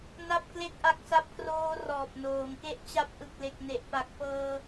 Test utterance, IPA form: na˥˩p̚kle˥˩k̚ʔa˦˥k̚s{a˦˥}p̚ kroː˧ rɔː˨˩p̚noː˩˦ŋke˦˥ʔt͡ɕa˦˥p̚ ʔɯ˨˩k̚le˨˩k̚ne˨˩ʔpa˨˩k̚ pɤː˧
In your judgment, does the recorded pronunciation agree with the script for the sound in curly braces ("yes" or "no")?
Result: yes